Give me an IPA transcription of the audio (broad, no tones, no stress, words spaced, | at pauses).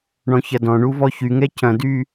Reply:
ɳɔ̃çɐdɔ̃ɳu vɔçyŋɛ cʰɐ̃dy